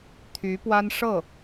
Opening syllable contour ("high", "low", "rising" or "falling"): rising